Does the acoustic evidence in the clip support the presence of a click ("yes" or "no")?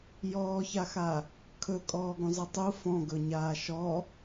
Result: no